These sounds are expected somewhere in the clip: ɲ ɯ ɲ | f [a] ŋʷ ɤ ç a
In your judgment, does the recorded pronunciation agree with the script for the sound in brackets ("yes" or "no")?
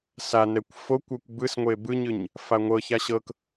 yes